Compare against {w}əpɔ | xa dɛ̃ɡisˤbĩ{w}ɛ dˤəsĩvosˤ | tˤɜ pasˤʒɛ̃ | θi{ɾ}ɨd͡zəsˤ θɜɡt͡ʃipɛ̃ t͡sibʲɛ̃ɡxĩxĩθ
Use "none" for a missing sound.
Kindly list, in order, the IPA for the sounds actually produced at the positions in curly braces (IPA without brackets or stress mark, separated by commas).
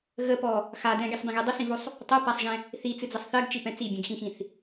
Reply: ɣ, ɣ, t͡s